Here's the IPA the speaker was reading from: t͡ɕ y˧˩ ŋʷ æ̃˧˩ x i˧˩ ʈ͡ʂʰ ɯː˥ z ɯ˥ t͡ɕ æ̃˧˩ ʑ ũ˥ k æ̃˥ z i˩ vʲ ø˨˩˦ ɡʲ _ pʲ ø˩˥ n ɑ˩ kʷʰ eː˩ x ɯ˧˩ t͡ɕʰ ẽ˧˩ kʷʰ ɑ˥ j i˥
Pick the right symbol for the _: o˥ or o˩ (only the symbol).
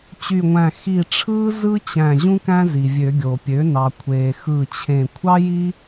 o˩